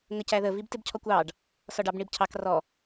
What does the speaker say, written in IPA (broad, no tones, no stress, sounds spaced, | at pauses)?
ŋ ə c æ ð ə v i b t ɪ b cʰ ɔ kʷ ɑ ɖ | s ɒ ɖ ɑ b ɳ i b cʰ ɑ k r ɔ